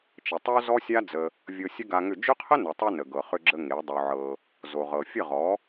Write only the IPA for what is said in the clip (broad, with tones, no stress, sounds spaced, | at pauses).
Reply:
t͡ʃ ə˨ tˤ o˦ z ɔ˦ sʲ a˦ d͡z ə˧ | vʲ ɤ˧ sʲ ə˦ ɡ a˧ ŋ ʏ˦˨ d͡ʒ ʏ˦ qʰ ə˦ n ə˨ tˤ o˧ n ə˨ ɡ ɤ˨ χ ʏ˧ ɡ͡ǁ ə˧ ŋ e˨˦ dˤ o˧ ʕ ɤ˧ | z o˨ ʁ ɤ˨ fʲ ə˦˨ ʁ ɔ˨˦